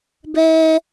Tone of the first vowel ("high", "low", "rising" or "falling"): high